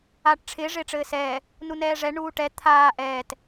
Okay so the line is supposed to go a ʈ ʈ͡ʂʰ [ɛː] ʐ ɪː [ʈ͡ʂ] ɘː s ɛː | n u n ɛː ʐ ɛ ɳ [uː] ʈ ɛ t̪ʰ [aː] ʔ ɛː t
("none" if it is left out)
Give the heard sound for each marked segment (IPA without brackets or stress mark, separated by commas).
ɪː, ʈ͡ʂ, uː, aː